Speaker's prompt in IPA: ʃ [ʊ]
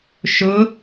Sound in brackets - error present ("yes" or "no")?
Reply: no